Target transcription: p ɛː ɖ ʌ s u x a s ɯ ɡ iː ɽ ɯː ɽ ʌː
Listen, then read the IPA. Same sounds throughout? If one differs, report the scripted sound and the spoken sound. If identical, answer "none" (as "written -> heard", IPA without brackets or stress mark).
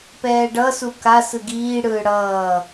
x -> k